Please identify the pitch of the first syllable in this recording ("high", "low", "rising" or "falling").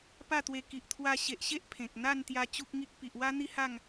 falling